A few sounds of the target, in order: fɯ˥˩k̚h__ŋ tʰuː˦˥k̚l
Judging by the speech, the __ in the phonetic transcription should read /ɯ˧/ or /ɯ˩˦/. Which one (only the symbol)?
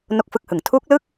ɯ˩˦